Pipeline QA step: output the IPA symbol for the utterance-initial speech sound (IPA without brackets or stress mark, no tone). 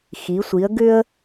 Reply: x